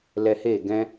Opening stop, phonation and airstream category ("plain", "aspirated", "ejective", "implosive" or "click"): plain